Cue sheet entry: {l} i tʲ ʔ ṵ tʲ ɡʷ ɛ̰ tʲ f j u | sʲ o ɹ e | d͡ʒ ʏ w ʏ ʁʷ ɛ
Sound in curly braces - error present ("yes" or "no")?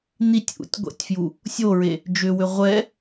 yes